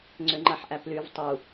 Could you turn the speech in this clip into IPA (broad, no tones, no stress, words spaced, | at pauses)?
ŋ͡ǀʏŋ͡ǃaħʔæplyv tˤu